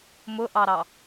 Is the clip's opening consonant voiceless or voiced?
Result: voiced